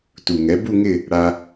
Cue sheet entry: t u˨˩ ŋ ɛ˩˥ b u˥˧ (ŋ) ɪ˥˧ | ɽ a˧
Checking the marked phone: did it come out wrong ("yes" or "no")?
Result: no